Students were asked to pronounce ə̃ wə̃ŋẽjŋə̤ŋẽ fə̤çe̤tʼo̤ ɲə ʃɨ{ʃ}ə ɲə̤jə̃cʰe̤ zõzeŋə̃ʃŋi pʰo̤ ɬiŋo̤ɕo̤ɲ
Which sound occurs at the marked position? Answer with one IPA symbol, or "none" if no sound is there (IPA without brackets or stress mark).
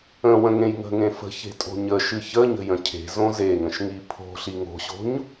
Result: ç